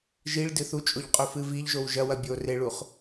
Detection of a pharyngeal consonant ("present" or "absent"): absent